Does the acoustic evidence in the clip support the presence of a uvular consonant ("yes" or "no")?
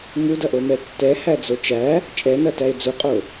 yes